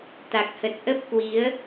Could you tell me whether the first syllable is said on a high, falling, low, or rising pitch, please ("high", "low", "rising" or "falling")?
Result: low